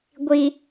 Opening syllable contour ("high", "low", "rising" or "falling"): high